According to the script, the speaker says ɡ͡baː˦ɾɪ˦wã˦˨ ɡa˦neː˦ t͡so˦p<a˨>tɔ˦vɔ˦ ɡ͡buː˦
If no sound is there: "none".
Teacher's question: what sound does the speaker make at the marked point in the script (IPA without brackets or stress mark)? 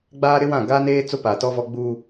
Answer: a˨